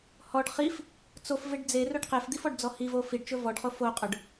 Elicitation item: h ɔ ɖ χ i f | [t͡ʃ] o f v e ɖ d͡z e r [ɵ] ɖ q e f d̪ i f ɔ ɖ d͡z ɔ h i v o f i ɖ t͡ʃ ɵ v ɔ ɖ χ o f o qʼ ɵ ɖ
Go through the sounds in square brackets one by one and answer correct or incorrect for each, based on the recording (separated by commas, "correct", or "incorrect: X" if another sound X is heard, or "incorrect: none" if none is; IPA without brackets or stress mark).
incorrect: t͡s, correct